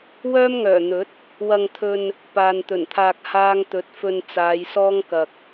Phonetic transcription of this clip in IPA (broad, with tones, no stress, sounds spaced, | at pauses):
w œː˥ m ŋ œː˨˩ n̪ ɵ˨˥ t̚ | w ɐ˧ ŋ t̪ʰ ɵ˧ n | p aː˨ n t̪ ɵ˨˩ n t̪ʰ aː˧ k̚ h aː˥ ŋ t̪ ɵ˨˥ t̚ f ɵ˧ n t͡s aː˨˧ j s ɔː˥ ŋ k ɐ˧ k̚